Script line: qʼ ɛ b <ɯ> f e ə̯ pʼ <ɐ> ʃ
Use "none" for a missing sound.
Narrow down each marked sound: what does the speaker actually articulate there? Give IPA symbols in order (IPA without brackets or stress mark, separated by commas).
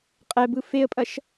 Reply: ɯ, ɐ